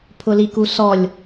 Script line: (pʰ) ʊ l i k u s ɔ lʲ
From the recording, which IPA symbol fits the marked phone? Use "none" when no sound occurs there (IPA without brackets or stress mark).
pʰ